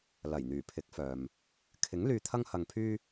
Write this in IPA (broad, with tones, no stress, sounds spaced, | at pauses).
l ɐ˨˩ j n̪ yː˨˩ pʰ ɪ˨˥ k̚ f œː˨ m | kʰ ɪ˨˥ ŋ l yː˧ t̪ʰ ɐ˥ ŋ h ɐ˧ ŋ pʰ yː˥